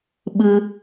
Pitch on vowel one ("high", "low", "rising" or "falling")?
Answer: high